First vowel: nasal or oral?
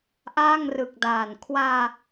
oral